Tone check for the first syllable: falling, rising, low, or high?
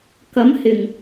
rising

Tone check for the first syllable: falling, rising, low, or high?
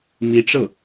rising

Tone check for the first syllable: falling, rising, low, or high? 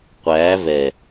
rising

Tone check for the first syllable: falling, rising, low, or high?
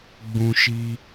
high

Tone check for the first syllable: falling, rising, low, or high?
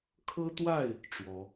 high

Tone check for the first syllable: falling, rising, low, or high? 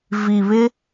low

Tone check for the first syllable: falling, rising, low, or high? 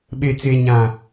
low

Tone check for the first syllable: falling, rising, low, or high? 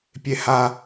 high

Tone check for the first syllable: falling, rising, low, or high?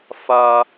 high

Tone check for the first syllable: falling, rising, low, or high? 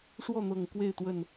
falling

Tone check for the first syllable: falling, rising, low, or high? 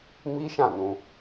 high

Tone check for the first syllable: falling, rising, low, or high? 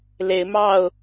rising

